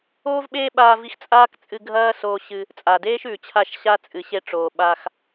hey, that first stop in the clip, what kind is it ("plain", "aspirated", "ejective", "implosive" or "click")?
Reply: implosive